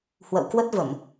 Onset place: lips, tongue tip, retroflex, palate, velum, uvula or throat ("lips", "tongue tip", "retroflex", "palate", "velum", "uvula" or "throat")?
throat